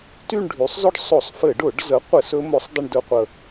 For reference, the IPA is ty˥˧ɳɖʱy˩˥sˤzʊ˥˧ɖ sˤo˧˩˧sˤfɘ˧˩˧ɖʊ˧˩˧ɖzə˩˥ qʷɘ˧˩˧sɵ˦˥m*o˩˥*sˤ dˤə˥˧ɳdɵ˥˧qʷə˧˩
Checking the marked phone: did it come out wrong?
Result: no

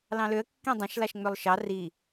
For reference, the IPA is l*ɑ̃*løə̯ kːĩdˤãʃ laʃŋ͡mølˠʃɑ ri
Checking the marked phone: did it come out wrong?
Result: no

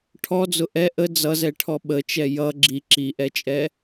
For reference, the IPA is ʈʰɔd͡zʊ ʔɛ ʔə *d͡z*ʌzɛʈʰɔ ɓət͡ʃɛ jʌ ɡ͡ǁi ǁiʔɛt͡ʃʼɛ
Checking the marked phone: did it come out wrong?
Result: no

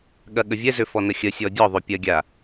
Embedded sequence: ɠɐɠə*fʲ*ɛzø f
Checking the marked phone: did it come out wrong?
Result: yes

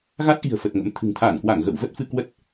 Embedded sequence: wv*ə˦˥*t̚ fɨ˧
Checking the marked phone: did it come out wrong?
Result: no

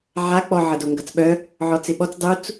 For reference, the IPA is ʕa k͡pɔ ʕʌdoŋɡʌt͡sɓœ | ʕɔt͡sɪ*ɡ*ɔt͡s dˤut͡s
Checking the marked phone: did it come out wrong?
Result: yes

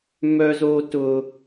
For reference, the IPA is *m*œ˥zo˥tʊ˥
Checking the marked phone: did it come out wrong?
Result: no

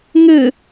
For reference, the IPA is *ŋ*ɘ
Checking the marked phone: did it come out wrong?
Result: no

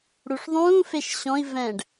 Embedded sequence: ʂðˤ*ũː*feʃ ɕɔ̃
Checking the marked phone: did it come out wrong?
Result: no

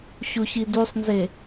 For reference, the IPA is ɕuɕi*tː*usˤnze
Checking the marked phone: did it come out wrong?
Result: yes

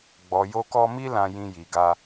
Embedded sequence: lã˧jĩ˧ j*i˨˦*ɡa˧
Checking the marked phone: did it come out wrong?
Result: yes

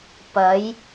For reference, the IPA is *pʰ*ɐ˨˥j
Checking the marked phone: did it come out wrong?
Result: yes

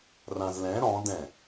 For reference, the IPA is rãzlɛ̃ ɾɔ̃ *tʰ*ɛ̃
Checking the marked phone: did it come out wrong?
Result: yes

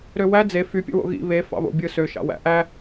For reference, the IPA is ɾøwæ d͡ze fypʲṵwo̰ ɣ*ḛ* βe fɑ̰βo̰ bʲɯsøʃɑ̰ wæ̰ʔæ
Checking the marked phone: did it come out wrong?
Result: yes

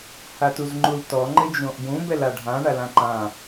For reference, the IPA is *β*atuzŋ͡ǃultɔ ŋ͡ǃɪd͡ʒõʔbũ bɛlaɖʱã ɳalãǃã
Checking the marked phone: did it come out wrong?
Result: yes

